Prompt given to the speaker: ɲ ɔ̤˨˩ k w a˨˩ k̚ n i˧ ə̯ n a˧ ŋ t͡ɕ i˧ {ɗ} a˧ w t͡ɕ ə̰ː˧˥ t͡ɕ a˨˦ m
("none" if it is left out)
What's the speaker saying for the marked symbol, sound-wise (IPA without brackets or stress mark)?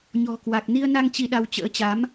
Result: ɗ